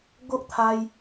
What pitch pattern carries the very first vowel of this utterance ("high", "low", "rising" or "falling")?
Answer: high